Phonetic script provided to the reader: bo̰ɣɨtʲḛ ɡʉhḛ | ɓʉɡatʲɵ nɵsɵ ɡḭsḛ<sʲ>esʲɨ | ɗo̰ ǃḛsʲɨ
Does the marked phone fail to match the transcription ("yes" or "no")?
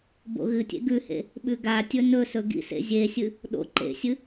yes